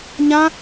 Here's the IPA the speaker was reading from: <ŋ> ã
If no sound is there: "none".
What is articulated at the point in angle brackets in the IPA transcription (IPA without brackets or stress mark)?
ɲ